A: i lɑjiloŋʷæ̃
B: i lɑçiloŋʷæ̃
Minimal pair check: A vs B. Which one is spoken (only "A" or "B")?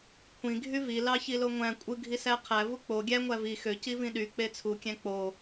B